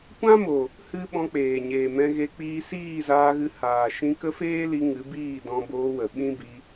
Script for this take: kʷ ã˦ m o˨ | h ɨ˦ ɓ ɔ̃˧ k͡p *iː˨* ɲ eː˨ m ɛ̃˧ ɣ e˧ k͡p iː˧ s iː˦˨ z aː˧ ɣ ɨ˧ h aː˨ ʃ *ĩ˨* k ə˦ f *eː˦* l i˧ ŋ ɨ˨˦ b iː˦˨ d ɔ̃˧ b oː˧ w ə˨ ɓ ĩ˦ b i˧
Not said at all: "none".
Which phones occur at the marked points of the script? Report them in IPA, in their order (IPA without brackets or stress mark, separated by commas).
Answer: eː˨, ĩ˧, eː˦